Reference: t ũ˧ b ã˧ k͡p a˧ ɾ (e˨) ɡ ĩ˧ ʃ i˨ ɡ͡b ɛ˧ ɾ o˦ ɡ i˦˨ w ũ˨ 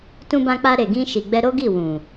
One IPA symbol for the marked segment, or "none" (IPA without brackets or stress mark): e˨